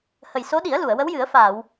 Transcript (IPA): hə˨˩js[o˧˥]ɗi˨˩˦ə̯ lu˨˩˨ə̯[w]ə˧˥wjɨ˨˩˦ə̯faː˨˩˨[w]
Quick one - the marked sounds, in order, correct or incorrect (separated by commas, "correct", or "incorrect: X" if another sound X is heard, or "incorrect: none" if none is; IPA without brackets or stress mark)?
correct, correct, correct